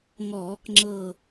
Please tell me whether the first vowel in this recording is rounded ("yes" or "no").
yes